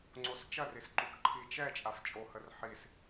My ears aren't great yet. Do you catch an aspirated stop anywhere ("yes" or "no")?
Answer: yes